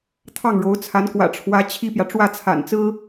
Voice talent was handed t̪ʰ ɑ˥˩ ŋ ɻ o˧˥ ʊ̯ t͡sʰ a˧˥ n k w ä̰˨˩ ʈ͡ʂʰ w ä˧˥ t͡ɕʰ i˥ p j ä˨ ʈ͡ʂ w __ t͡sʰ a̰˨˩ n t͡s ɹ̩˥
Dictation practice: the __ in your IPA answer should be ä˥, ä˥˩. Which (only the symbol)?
ä˥˩